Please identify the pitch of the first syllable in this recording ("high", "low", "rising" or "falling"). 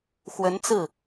rising